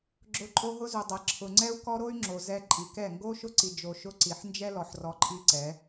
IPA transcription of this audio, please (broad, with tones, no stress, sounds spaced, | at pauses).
ɡ͡ǁ ʊ˨˦ ǃʼ o˧ ɦ ʊ˦ z u˨ dˤ ɛ˨ ǁʰ ʊ˨ ŋ͡ǀ ɛ˦ u̯ k ɔ˦ ɾ o˦ y̯ ŋ͡ǁ o˨ z ɛ˧ ǃʼ i˨ k ɛ˦˨ ŋ ɡ o˦ ʃ ʊ˦ ǀ i˧ d͡ʒ o˧ ʃ ʊ˦ ǀ i˨ ħ n d͡ʒ ɛ˦ l ɔ˨ ħ r ɔ˧ ǃʼ i˦ ǀ ɛ˨˦